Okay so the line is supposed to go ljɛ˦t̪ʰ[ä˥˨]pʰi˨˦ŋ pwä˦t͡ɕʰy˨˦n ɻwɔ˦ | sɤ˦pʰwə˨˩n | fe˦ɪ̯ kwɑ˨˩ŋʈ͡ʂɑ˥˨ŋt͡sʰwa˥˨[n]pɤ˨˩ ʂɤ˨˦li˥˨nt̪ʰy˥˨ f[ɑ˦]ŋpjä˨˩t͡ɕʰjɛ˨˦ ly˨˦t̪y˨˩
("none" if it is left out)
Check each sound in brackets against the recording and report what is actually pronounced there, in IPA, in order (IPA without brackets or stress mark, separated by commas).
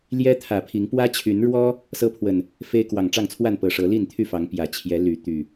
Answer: ä˨˩, n, ɑ˨˦